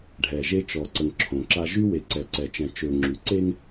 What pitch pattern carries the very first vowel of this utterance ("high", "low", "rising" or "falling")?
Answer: low